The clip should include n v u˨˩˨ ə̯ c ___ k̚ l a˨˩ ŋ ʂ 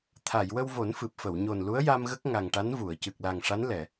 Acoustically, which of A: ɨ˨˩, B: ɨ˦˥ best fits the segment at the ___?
A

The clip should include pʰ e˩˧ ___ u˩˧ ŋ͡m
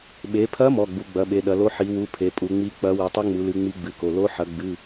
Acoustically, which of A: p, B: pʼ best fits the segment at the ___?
B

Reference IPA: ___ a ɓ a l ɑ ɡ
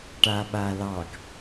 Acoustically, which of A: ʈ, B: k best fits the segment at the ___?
A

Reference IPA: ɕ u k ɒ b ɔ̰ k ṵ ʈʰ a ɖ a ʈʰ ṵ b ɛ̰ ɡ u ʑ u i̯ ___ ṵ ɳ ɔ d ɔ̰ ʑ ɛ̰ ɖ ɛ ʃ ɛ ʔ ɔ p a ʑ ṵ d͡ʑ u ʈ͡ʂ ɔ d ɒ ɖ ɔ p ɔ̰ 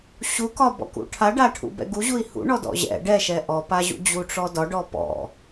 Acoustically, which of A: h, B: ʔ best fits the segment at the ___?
A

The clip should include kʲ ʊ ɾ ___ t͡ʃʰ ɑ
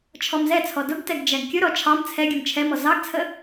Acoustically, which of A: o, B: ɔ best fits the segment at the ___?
B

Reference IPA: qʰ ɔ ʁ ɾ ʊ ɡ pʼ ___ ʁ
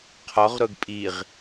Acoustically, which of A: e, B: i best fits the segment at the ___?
B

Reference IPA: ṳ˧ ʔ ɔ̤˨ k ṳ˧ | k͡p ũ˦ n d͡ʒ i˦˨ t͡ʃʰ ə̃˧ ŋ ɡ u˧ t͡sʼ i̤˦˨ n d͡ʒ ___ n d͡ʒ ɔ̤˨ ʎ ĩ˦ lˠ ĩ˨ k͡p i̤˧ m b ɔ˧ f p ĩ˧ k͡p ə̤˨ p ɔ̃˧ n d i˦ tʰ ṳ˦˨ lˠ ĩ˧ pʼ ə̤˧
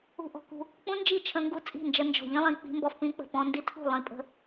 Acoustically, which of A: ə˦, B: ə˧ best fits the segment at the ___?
B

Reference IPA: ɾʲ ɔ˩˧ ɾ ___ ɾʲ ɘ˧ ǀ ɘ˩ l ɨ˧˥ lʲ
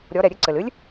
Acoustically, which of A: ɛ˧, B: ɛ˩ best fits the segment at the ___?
B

